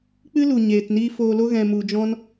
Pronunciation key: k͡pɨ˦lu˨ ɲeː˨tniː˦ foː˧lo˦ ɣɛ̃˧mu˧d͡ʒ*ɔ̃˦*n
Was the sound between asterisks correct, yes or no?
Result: yes